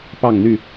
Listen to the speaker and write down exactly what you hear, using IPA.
p ɑ˥˨ ŋ n̪ y˥˨

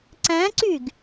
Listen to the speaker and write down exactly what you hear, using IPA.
ǀ æ̃ ǀ y ɡ

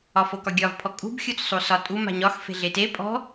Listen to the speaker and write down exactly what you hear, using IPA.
ɒ f o k ɒ ɡʲ ɒ v pʰ ɔ kʼ ṳ b xʲ u t͡s sˤ u s ɒ tʼ u m a̤ ɲ ɒ x f e̤ ɮ e t e pʼ ɔ̤

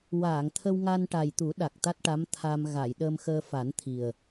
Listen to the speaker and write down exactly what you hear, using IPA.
w aː˨˩˨ ŋ t̪ʰ ə˧ w ŋ a˧ n ʈ a˨˩ j t̪ u˨˩˦ ɗ a˨˩ k̚ t̪ a˦˥ t̚ ʈ a˧˥ m t̪ʰ a˧ m ɣ a˨˩˨ j ɗ əː˧ m x əː˧ f a˨˩˦ n t̪ʰ i˨˩ ə̯

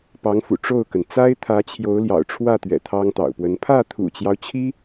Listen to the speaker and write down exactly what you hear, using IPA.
p ɑ˧˥ ŋ f ṵ˨˩ ʈ͡ʂ o˥˩ ʊ̯ k ə˩ n t͡s a˥ ɪ̯ t̪ʰ ä˧˥ t͡ɕʰ j o˧˥ ʊ̯ l j ɑ̰˨˩ ʊ̯ ʈ͡ʂʰ w ä˥˩ t̪ ɥ ɛ̰˨˩ t̪ʰ ɑ˥ ŋ t̪ ɑ̰˨˩ ʊ̯ p w ə˧˥ n pʰ ä˥˩ t̪ʰ ṵ˨˩ t͡ɕ j ɑ˦ ʊ̯ t͡ɕʰ i˥

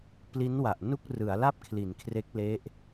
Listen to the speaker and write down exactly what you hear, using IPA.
p l i˦˥ n w a˨˩ ʔ n u˥˩ k̚ r ɯ˩˦ a̯ l a˥˩ p̚ kʰ l i˩˦ n kʰ r e˦˥ k̚ l e˦˥ ʔ

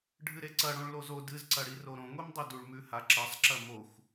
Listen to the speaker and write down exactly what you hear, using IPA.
ɖʱ ɨ ɾ e ǀ ɐ ɽ õ ɭ l o z o d ɨ z ǀ ɐ ɽ i r o ɾ õ ŋʷ i m dˤ ɵ d u ɭ m ʉ h a ǁ ɐ sˤ ǁ ɐ m o xʷ

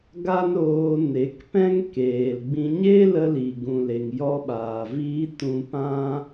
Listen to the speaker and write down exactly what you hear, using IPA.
ɡ a˦ n ɾ oː˧ n e˨˦ k p ɛ̃˦ ŋ k eː˨ l ɡ͡b ĩ˧ ɲ e˦ l ə˧ l i˨ ɡ ũ˨ l e˨ ŋ j ɔ˧ ɓ aː˨ v iː˧ t ũ˧ p ã˦

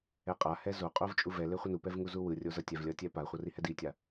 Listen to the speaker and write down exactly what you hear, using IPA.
ɛ qʼ a h ɛ z o qʼ o v t͡ʃʼ u v ɛ l e χʷ ʌ n u p ɛ v ŋ u z u w ɯ rʲ o z ʌ tʲ ɛ v lʲ ʌ tʲ ɛ p a χʷ ʌ r i h ɛ d i tʲ a

